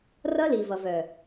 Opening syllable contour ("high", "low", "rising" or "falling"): high